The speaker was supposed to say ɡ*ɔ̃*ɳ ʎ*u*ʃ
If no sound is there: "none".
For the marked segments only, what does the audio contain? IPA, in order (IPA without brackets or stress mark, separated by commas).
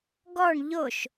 ɔ, o